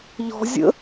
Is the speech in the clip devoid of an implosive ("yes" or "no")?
yes